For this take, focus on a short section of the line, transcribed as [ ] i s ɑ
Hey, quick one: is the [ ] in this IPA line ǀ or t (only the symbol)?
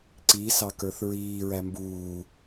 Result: ǀ